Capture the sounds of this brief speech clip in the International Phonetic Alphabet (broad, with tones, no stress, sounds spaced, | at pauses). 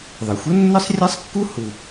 ðˤ ɯ˩ xʷ ɤ˥ nː ɯ˥ sˤ rʲ ɛ˥ sˤ kː u˥ h u˩